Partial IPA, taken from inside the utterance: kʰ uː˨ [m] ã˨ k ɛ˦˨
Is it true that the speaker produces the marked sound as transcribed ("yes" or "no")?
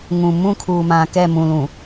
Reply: yes